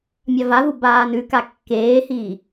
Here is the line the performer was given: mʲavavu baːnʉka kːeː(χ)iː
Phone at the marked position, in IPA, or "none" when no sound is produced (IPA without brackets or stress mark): h